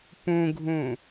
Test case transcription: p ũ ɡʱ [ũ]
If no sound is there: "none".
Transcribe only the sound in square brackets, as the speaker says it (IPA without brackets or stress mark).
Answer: ũ